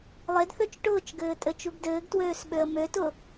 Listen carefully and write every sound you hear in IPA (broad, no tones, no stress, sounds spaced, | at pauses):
lˠ e d θ ø t͡ʃ ʈ ʊː t͡ʃ ɡ ɘː tʼ ɘ t͡ʃ u ɡ d ɘː ɡ t w øː s ɓ ø ə̯ m ø t ʊ